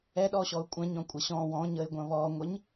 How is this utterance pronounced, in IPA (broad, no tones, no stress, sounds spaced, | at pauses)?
ɛ ɗ ɔ ɕ ɔ ʊ̯ kʷʼ ɐ̃ ɲ ɔ̃ kʷʼ ɐ ɕ ɔ̃ w ɔ̃ ɲ ə ɪ̯ ɡʷ ɐ̃ β ɔː ŋʷ ə ɲ